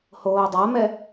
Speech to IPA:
hoːdˤamɛ

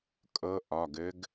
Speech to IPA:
kʼɤ˧˥ʔɒ˩˧˩ɡɘ˧˥ɡ

